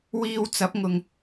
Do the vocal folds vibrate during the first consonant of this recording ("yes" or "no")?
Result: yes